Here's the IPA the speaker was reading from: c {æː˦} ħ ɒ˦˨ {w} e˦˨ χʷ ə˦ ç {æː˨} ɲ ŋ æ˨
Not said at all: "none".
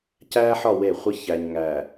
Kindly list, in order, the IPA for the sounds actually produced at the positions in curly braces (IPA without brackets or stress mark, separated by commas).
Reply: æː˦, w, æ˨